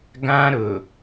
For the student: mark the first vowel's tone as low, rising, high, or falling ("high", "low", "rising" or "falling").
high